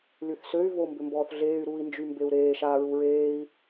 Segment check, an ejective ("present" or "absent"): absent